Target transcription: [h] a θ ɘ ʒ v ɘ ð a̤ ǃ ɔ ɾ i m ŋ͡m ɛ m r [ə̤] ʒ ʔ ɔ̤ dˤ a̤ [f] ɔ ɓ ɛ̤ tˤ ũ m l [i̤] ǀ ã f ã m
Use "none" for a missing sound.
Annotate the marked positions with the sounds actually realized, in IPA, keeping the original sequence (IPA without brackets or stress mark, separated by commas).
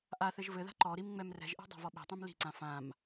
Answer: ʔ, ɛ̤, v, i̤